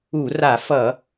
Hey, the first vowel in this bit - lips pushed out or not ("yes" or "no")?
yes